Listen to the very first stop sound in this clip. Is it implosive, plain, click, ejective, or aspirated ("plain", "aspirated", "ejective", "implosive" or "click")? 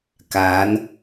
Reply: plain